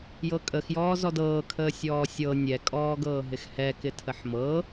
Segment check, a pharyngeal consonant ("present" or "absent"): present